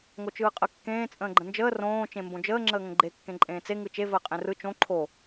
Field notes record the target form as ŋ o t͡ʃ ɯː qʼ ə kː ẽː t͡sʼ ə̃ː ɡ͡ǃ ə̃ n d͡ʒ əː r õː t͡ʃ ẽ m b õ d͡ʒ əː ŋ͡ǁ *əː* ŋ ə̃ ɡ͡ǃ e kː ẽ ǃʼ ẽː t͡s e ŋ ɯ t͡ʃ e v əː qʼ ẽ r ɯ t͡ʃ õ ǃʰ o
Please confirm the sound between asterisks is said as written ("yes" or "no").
yes